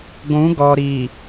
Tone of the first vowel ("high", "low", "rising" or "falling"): rising